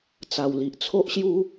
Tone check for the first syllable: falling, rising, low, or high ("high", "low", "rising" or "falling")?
low